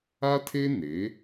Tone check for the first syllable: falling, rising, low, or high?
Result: high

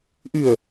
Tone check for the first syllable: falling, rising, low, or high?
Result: low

